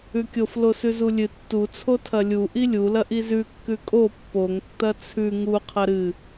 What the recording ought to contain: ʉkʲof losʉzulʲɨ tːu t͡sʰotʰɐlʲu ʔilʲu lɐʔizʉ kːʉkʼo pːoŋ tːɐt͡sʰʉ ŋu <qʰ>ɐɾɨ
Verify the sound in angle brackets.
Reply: correct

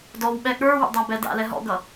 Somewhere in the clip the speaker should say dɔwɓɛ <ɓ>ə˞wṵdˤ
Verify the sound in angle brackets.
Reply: incorrect: ɠ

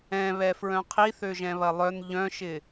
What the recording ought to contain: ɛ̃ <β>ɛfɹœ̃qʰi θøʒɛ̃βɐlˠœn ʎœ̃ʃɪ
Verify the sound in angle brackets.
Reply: correct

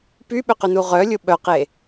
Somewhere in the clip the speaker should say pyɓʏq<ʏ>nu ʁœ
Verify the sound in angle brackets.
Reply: correct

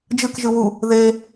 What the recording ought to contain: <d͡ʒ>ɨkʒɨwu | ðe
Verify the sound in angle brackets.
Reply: correct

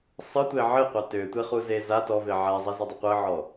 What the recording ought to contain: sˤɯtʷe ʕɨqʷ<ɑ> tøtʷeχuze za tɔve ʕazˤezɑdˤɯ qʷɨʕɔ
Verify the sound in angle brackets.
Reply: correct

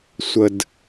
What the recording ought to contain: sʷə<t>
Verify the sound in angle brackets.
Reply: incorrect: d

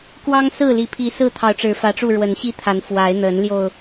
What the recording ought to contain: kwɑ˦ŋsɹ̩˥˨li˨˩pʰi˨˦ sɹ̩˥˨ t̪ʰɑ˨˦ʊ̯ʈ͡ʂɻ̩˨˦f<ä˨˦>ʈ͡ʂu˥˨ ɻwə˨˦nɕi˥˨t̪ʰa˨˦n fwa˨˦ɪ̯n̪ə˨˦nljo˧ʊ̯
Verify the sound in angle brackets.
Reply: correct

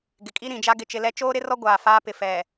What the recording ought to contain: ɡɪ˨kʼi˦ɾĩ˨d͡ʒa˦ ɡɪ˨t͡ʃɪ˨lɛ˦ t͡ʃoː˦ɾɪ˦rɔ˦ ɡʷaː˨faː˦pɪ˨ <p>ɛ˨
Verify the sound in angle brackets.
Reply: incorrect: f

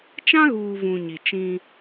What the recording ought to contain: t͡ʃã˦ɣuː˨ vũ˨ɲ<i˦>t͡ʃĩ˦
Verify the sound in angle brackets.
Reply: incorrect: i˨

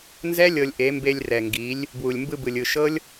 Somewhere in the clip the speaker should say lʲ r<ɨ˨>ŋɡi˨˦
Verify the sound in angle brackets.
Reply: incorrect: ɛ˨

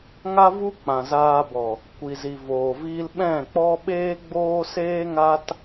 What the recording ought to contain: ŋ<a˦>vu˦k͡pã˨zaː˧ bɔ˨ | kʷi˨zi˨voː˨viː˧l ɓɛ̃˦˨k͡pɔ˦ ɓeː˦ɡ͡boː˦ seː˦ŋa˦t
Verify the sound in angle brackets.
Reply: correct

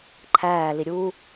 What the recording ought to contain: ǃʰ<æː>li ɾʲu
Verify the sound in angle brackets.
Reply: correct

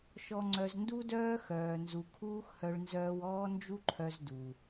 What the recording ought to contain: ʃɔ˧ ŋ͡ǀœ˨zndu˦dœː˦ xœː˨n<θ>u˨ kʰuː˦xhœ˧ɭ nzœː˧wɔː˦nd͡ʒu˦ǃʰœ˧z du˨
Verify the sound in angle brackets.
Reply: incorrect: z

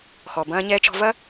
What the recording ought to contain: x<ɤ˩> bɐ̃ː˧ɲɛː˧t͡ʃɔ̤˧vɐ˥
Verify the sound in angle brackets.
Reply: incorrect: ɔ˩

